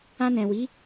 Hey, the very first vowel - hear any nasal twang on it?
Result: yes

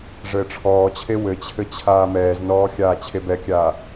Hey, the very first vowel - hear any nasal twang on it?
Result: no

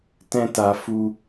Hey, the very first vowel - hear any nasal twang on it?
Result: yes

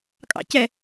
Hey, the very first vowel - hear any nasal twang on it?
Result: no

